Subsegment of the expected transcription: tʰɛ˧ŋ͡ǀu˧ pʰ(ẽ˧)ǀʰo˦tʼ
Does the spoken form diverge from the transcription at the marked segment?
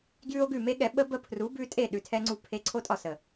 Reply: yes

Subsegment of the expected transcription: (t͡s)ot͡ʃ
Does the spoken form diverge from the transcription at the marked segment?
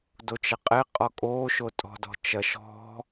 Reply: yes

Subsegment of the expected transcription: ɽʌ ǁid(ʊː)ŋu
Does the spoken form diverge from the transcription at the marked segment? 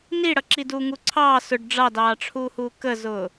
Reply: yes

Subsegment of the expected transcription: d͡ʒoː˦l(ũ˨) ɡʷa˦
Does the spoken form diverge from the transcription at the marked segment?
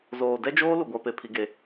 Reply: yes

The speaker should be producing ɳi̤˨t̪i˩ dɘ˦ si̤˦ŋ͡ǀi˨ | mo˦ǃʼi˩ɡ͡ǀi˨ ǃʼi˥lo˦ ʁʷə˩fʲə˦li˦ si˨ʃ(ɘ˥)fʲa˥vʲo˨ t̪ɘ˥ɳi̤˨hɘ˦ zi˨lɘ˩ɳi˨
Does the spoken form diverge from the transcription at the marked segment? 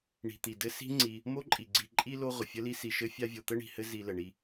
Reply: no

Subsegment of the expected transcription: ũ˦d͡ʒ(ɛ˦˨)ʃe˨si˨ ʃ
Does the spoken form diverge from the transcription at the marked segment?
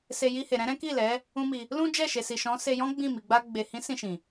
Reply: no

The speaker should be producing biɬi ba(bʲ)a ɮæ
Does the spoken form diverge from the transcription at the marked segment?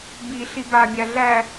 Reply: no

